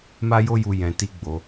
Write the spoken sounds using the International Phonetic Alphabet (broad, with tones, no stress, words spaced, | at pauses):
ma˦jo˦ju˧ jɛ̃˧ti˦ɡ͡bo˧